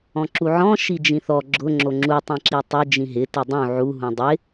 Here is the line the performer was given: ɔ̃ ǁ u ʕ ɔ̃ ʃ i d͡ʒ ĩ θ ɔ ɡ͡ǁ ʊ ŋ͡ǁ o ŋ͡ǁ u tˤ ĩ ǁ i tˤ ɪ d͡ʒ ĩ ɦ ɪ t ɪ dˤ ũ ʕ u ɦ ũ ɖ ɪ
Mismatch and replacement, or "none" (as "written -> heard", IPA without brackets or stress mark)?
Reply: ɖ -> dˤ